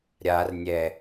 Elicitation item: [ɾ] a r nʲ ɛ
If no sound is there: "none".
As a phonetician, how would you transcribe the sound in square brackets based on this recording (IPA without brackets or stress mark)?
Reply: ɾʲ